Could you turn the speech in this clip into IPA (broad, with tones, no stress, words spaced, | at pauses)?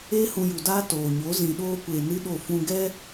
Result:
eː˦hũ˧ju˨daː˦ toː˨ɲo˨˦ zĩ˨ɗoː˧kʷeː˨nɨ˧ ɗo˦˨ fũ˧ɡɛ˦